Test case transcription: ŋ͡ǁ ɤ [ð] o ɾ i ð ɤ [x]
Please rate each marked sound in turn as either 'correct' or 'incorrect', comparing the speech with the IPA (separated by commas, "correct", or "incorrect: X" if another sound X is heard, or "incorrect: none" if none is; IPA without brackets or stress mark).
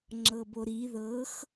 incorrect: b, correct